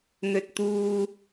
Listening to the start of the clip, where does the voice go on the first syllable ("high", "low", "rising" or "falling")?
high